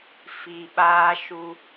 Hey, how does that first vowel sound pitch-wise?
low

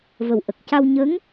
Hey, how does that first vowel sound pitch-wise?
low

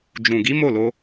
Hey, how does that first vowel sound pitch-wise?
low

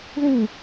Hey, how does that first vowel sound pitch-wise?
falling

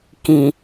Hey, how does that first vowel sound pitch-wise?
low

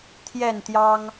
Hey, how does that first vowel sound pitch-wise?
falling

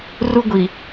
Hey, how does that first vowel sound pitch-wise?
high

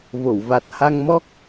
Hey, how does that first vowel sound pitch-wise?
low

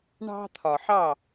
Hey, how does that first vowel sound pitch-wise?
high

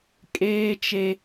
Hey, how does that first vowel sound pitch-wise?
high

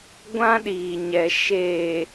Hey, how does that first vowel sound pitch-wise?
high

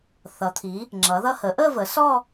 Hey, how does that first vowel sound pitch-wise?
rising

